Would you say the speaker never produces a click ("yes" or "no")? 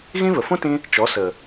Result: yes